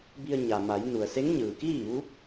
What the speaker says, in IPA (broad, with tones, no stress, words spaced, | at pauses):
bi˧ə̯ ɲa˩ma˩˧j nu˩ə̯se˧˥ŋɲɯː˩kiː˥˨ ʋu˧˥p̚